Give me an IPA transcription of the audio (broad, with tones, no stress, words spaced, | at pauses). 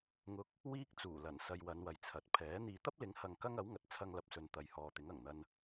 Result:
ŋʊ˧k̚ | wiː˥k̚t͡suː˨˩lɐ˨˩n sɐ˧jwɐ˨˧nwɐ˨jt͡sʰɐ˨˥t̚ pʰɛː˨˥ n̪iː˨t̪ɐ˥p̚lɪ˨˥ŋhɐ˨ŋ kɐ˥ŋɐ˨˥wŋɐ˨˥t̚ t͡sʰɐ˧ŋlɐ˨p̚sɵ˨n t̪ɐ˨jhɔː˨t̪ɪ˨˥ŋ ɐ˨˩ŋn̪ɐ˧n